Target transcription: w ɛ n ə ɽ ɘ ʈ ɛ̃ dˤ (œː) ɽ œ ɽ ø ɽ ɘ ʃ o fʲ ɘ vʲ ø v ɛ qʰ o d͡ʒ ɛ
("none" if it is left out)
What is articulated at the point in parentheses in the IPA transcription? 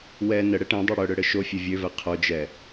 œ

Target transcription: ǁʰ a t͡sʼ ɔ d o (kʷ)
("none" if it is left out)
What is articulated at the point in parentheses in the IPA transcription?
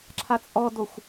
xʷ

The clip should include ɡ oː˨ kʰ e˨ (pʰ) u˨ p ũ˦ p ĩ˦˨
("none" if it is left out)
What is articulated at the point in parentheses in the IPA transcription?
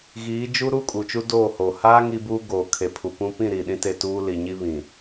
pʰ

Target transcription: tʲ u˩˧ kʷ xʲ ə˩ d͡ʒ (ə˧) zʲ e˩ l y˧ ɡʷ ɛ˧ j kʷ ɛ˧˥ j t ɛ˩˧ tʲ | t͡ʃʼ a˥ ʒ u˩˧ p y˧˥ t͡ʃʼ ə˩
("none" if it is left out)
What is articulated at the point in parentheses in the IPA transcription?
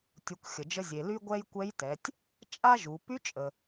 ə˧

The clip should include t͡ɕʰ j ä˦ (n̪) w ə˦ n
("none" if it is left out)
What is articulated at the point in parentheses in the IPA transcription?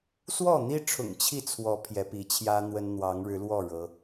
n̪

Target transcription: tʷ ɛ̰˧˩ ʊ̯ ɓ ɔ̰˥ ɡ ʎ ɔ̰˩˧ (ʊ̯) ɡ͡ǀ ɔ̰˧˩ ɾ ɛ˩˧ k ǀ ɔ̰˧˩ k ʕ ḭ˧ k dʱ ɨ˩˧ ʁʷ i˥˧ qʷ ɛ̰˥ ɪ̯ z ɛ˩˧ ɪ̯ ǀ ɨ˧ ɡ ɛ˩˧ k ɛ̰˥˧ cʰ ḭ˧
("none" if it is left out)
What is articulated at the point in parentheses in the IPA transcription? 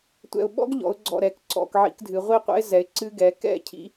ʊ̯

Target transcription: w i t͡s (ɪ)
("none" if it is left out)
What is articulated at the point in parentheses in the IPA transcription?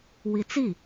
i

